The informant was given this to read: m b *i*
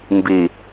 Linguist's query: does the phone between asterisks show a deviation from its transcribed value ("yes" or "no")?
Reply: no